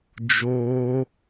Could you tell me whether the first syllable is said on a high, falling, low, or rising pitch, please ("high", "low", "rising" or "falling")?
high